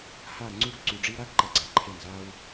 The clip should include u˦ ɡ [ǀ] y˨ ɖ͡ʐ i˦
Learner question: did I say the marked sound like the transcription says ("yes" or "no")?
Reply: yes